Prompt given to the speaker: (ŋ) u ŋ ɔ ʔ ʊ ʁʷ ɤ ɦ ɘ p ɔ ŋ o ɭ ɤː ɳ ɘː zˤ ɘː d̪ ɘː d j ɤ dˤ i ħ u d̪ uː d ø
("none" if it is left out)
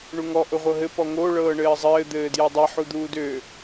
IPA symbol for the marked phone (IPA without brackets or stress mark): ɳ